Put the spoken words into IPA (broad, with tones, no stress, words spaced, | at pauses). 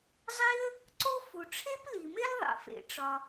zˤi˥ə̯ | ǀo˥ fu˩ʈ͡ʂʰe˥pli˩me˥l ðˤḛ˩fḛ˩ʈ͡ʂɒ˩